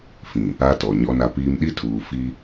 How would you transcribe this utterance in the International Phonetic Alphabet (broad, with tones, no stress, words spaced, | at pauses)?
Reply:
fĩ˨ | a˦tɔ˨ ɲɔ˦na˦piː˦m ɗi˦tʰuː˨ fiː˦